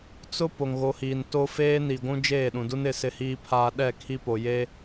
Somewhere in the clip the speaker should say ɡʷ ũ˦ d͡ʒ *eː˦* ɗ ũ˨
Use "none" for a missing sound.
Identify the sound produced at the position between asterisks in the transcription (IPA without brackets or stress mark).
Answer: eː˦˨